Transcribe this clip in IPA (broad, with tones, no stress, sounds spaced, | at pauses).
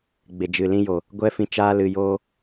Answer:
ɡ͡b e˨ d͡ʒ ɨ˨ l ĩ˧ j o˨ | ɡʷ ɛ˧ f ĩ˨ t͡ʃ aː˧ l ɨ˨ j oː˦